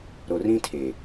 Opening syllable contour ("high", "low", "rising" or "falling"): low